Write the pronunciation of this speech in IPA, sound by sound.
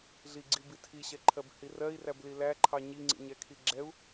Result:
ɮ i ɡ͡ǀ i b i tʰ i ɕ ɛ ǃʰ ɜ b h i r ɜ i̯ r æ b l i l æ ǃʰ ɑ ɲ i ŋ͡ǀ ḭ ɲ ɛ kʰ i ɡ͡ǁ ɛ u̯

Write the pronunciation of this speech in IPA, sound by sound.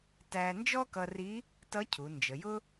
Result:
t æ˧ n d͡ʒ ɔ˥ k ʌ˧ r i˧˥ | t ʌ˧˥ cʰ u˩˧ n d͡ʒ ə˩˧ j ʊ˥

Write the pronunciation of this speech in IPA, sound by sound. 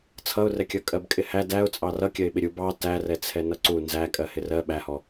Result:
t͡sʰ ʌ ʊ̯ r ɛ kʲ ʌ kʼ ɜ b kʼ ɪ h æ d æ ʊ̯ t͡sʼ ɑ r ʌ kʲ ɜ ɪ̯ ɓ ɪ ɾʲ u b ɑ t æ r ɛ t͡sʰ ɛ n ʌ ǀ u n z æ kʼ ɜ h ɪ r ɜ ɓ æ h ɔ

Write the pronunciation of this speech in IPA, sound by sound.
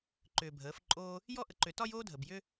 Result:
ǃ ʏː˨ bʱ əː˩˥ f ǃʼ oː˥ | j ɔ˥ ʔ ə˨ ǃ ʏ˨˩˦ t ɒ˥ j oː˥ dʱ ə˨ b j ʏ˥

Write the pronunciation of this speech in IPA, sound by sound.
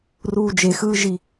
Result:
r uː d͡ʒ e x ɯː ʒ i

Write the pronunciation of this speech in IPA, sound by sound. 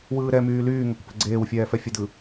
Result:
w ɯː ɾ ɛ m yː l yː ŋ ɛ kʷ p ɛ̤ ɡ͡ǀ eː w fʲ ɛː f ɛ fʲ ə d ɯ

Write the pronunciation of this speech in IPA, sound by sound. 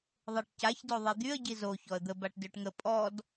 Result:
ðˤ e ʈ c a ç d o ðˤ ɛ d̪ y ə̯ ɟ i z o ç ɔ ə̯ d̪ ə b a ʈ d ø ʈ ŋ ə pʼ ɔ d

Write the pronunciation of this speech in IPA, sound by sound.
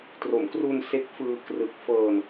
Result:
t r o˩˦ m k r u˧ n s e˦˥ k̚ f ɯː˧ k r ɯ˨˩ k̚ f ɤː˧ n

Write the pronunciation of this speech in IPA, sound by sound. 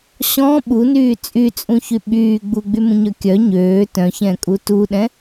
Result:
ɕ ɔ̃ ɓ u n yː t͡sʼ y t͡sʼ ũ ç y ɓ yː ɡ͡b u ɡ͡b y m ũ ɲ œ kʲ œ ɲ øː t œ̃ ç ɛ̃ kʼ u t u ɗ ɛ̃

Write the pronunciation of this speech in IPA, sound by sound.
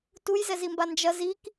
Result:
t u j z ɛ z i m b a n d͡ʒ ɐ z i k

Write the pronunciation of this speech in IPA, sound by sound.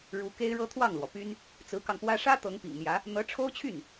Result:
ɻ u˧˥ k e˥ ɪ̯ ɻ ɤ˥ t̪ʰ w ɑ˥˩ ŋ l w ɔ˩ p y˥ n | t͡s ɹ̩˧˥ k ɑ˧ ŋ p w ä˥ ʂ ä˥ t̪ ɤ˧˥ ŋ p ḭ˨˩ ŋ n̪ j ä˧˥ | n̪ ɤ˧˥ ʈ͡ʂʰ o˥ ʊ̯ t͡ɕʰ y˥˩ n

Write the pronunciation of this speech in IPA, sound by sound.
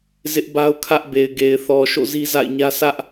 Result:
z ɪ˦ ʔ b a˦ ʊ̯ kʰ ä˦ ʔ b e˨ ɪ̯ ɡ e˨ ɪ̯ θ ɔ˨ ʃ o̰˦˨ z i˦ z a̰˦˨ ɪ̯ ɲ ä˦ sʰ ä˦ ʔ

